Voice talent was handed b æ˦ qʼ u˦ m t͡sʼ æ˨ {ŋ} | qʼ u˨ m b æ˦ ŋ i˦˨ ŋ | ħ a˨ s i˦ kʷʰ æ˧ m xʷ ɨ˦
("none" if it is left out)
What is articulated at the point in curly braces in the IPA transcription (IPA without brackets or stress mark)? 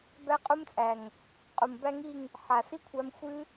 ŋ